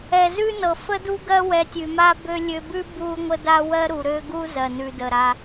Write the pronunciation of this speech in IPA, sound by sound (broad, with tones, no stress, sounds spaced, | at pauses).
ɛ˨ z ʉ˦ n ɤ˨ f ə˦ d u˦ ɡ ɜ˦ w ɛ˧ tʲ ʉ˨ m a˦ b ø˦ lʲ ø˧ b ʉ˦ b u˦ ŋʷ ə˦ d a˦ w ɜ˦ ɾ u˨ ɾ ø˦ ɡ u˦ z ɜ˨ n ʉ˨ d ə˨ ɾ a˧